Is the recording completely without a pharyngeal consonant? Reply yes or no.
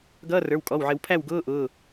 no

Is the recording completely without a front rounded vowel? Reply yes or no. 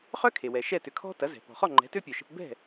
no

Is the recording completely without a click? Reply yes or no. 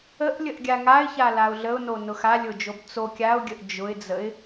yes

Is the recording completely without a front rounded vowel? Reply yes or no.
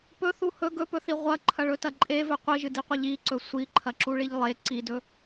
yes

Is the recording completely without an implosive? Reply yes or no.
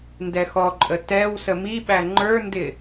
no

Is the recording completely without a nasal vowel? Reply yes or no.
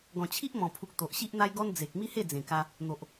no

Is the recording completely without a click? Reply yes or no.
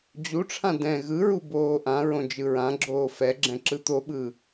no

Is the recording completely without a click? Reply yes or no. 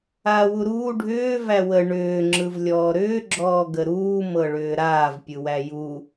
no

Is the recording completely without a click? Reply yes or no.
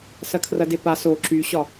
no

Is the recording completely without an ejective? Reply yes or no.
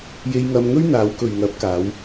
yes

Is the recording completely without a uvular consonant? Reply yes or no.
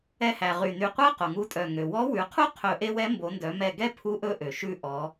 no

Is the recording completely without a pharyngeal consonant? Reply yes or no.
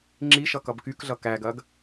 yes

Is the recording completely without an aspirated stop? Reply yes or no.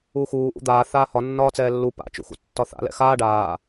yes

